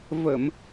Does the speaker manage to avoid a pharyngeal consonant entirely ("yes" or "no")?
yes